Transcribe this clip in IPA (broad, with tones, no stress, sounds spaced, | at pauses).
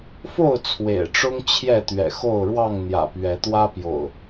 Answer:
f o˥˨ ʊ̯ t͡sʰ w ḛ˨˩ ɪ̯ ʈ͡ʂ ʊ˦ ŋ t͡ɕʰ j ɛ˥˨ t̪ ɥ ɛ̰˨˩ x o˥˨ ʊ̯ ɻ w ɑ˥˨ ŋ n̪ j ä̰˨˩ p ɥ ɛ˨˦ t̪ w ä˦ p j o̰˨˩ ʊ̯